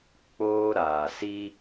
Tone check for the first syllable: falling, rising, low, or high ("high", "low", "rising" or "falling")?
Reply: high